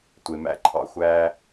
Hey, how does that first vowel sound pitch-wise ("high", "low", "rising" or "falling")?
low